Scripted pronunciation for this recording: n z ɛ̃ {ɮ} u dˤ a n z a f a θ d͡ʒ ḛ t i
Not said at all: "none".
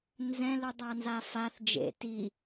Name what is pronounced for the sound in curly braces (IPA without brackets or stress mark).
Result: l